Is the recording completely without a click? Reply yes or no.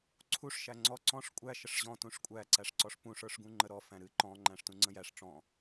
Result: no